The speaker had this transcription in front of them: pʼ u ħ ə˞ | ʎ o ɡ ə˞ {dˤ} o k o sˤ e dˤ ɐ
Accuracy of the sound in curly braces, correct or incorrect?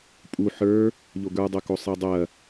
correct